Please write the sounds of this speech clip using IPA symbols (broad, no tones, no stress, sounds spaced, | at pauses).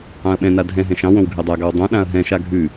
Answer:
ɑ̃ ɐ̯ ɓ ɛ̃ n a dʱ ɛ̃ ɦ ɛ̃ ʃ ɑ̃ w õ w ɡʱ ɛ dˤ a ɡ ɑ w dˤ õ ɗ ã ɐ̯ ɦ ɛ̃ ʃ a ɡʱ ʉ